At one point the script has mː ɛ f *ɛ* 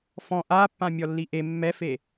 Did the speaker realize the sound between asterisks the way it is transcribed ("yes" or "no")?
no